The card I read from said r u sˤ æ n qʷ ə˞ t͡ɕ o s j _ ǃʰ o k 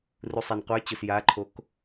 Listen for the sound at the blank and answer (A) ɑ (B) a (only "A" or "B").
B